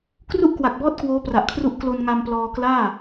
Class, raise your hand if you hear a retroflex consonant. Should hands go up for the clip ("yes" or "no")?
no